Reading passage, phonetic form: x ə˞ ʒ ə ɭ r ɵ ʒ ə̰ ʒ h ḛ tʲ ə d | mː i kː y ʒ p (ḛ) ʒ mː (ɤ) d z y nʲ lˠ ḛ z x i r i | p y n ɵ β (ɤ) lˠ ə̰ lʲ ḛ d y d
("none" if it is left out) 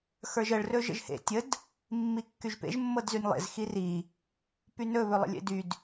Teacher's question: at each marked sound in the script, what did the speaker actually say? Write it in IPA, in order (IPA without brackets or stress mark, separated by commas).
ḛ, ɤ, ɵ